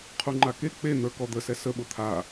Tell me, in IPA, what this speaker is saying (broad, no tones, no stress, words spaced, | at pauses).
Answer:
qʰuŋ͡ǃake k͡pen̪ə˞ kɔd̪əsɛ səɓʊ t̪ʰa